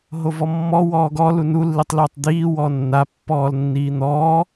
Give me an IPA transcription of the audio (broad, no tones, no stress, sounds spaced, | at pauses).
ɦ o v ɔ mː ɔ w ɔː ɡ ɔ l u n u lː i tˤ l uː tˤ d̪ iː w ɔː nː a pː ɔː l nː iː n̪ ɔː